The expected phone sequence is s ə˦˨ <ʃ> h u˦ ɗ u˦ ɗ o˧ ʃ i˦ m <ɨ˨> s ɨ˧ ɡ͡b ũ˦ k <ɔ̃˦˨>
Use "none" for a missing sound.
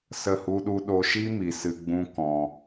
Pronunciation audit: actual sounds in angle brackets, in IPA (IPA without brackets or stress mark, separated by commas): none, i˨, ɔ̃˧